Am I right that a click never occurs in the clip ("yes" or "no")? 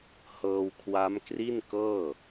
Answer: yes